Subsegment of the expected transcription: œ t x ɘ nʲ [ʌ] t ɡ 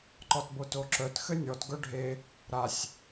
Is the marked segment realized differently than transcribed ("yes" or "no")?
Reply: yes